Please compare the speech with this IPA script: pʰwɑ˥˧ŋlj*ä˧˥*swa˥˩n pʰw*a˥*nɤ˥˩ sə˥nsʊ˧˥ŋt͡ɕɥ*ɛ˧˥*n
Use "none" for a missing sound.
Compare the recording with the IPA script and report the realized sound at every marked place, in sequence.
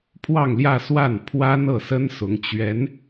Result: ä˥˧, a˥, ɛ˧˥

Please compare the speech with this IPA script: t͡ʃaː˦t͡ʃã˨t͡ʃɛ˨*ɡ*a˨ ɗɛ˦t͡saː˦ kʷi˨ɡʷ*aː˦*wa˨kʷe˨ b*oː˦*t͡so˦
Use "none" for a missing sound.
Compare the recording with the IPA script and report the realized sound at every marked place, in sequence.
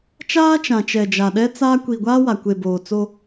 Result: d͡ʒ, aː˦, oː˨

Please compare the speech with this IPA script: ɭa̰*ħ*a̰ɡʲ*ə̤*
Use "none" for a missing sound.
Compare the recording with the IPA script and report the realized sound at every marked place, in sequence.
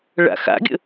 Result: x, ə̰

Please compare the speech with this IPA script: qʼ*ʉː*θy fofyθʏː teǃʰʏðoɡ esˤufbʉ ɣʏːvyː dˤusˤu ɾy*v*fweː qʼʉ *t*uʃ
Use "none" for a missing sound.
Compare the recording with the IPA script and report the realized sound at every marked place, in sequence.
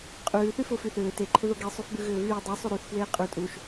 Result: ʉː, θ, tʼ

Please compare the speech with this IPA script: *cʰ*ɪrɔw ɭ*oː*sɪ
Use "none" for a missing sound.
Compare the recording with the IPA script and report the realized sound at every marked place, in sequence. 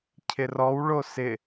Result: cʰ, o

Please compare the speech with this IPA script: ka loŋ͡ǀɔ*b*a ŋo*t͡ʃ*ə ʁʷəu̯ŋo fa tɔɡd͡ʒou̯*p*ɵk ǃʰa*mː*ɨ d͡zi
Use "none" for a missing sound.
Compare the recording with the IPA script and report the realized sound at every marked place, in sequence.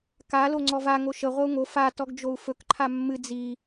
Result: v, ʃ, f, mː

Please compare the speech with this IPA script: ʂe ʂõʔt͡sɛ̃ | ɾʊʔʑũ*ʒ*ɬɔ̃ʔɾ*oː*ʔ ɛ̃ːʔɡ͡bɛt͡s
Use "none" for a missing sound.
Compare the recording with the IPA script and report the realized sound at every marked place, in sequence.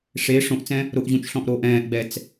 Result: t͡ʃ, oː

